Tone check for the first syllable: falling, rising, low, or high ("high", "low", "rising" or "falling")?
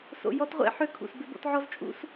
low